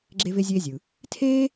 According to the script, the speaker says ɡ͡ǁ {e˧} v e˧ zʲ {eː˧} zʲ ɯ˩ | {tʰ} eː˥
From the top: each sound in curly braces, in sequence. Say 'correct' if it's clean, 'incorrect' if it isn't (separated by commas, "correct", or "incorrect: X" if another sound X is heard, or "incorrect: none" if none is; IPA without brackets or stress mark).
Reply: correct, correct, correct